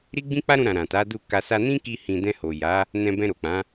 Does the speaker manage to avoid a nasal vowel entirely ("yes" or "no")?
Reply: no